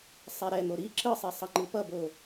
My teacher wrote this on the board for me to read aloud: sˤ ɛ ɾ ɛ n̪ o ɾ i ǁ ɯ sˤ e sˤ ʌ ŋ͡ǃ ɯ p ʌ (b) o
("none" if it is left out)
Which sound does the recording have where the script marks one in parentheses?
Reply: b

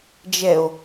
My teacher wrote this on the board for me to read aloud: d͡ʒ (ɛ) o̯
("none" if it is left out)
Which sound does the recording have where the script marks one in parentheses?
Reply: ɛ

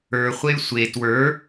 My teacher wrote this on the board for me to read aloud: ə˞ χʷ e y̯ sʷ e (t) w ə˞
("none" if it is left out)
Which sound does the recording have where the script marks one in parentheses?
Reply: t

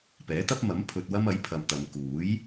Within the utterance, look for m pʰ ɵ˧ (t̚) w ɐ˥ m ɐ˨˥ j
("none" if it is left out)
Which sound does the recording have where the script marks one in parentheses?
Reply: t̚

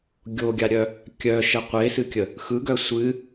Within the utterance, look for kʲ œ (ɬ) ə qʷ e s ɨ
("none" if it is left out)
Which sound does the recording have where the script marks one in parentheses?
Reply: ʃ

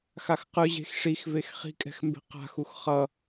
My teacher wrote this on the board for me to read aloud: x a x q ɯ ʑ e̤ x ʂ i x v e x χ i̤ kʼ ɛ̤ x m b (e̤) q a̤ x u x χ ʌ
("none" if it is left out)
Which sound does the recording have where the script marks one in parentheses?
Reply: e̤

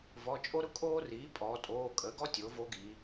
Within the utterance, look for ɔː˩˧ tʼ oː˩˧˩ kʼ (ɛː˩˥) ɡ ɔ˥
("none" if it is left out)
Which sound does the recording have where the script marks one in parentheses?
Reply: əː˩˥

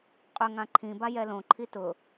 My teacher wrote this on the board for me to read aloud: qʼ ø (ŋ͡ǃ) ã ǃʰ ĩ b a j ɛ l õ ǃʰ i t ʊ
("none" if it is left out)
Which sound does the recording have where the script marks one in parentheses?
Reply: ŋ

